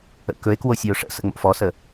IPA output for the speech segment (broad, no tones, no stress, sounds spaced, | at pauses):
ə̰ k ɵ e̯ k w o sʲ ʉ o̯ ʂ ə̰ s ə̰ ŋ͡m o̰ f ɔ s ə